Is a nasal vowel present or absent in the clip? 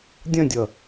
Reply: present